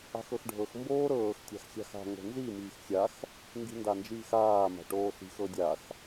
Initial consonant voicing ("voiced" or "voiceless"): voiceless